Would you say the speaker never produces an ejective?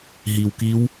yes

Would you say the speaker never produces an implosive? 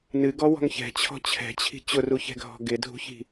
yes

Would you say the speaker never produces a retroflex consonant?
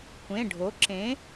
no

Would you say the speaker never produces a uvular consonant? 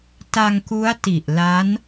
yes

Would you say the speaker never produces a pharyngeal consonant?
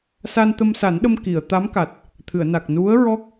yes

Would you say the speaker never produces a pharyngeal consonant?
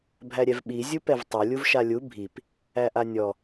yes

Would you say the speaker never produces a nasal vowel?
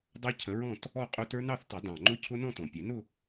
no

